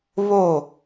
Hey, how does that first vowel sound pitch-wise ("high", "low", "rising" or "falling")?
falling